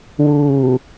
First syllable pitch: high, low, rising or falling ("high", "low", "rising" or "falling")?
low